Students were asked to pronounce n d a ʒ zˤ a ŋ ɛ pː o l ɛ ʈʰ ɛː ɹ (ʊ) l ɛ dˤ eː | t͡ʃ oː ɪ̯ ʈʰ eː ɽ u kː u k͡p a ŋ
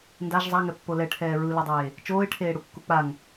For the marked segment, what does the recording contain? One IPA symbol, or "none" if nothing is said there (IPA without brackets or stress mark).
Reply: ɯ